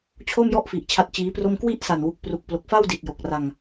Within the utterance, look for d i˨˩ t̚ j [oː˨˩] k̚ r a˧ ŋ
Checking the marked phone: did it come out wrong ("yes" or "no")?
yes